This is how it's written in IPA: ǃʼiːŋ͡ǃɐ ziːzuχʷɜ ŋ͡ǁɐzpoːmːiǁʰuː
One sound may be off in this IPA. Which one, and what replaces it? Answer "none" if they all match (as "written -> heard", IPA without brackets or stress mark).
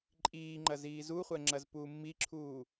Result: oː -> uː